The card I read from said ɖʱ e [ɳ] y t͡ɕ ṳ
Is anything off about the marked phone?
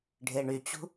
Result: no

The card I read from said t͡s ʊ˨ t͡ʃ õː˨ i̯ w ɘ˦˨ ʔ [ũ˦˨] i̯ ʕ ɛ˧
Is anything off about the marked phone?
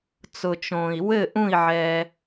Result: no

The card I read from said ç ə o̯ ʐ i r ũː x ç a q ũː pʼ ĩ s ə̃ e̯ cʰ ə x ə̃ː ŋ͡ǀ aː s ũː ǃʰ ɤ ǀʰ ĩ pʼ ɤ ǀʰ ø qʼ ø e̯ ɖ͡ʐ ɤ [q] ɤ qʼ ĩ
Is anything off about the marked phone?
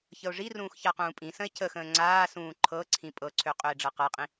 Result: no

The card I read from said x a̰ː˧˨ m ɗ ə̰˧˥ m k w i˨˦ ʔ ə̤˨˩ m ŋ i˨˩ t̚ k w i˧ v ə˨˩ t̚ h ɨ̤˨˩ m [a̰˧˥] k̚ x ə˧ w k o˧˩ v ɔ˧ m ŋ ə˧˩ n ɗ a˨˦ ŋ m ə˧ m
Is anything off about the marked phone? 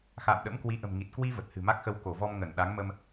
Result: yes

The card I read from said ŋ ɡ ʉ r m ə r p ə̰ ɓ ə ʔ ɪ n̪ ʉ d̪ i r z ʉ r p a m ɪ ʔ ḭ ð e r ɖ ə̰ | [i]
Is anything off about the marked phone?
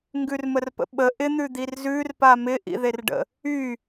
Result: yes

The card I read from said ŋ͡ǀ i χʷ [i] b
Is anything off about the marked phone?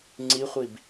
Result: no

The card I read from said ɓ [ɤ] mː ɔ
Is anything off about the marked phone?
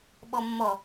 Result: yes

